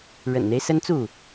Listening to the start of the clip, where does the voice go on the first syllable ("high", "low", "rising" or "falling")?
low